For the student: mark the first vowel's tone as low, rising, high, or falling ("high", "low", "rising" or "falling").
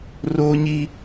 high